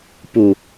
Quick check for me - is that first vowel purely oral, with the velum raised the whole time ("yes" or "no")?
yes